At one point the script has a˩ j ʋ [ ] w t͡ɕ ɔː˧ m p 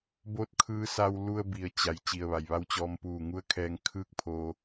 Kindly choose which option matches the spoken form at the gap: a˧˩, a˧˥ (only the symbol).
a˧˥